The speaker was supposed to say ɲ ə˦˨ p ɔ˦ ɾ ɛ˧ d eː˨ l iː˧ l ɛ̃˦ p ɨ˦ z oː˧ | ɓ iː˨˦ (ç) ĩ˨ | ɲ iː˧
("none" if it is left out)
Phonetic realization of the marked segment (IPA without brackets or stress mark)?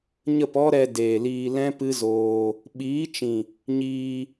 t͡ʃ